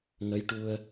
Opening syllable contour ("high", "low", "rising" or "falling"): rising